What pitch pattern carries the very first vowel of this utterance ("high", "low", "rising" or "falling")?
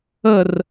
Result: falling